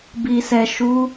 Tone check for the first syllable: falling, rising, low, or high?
low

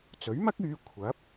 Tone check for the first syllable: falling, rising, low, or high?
rising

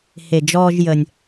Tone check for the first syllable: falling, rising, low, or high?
low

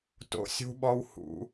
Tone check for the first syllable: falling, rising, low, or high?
rising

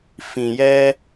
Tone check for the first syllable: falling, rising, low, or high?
low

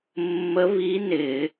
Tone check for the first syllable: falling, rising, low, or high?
rising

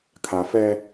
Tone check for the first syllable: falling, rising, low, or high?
low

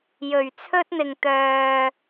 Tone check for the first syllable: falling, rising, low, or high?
low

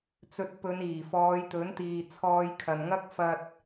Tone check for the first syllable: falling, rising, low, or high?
rising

